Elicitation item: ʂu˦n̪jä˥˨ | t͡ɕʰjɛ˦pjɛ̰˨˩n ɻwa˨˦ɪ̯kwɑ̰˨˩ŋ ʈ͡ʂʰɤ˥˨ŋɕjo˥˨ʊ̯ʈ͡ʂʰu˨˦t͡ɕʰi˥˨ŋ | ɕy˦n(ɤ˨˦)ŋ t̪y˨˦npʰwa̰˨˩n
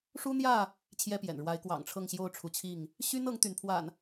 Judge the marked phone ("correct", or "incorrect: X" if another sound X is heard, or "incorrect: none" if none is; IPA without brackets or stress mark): correct